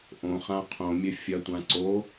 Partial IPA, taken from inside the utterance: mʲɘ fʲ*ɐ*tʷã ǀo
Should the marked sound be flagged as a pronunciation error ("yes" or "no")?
no